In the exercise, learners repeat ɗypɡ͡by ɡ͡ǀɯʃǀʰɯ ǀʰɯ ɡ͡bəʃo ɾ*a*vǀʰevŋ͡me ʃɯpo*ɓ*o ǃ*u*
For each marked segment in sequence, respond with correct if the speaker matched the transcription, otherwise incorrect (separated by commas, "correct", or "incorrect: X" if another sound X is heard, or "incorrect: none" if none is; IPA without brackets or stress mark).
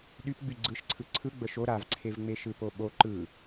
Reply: correct, correct, incorrect: ɯ